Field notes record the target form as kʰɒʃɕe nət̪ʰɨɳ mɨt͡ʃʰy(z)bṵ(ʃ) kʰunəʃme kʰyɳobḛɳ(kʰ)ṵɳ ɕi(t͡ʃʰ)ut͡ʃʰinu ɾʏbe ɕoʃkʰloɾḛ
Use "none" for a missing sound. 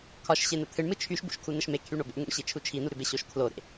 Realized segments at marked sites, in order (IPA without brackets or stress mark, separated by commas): ʃ, ʃ, ŋ, t͡ʃʰ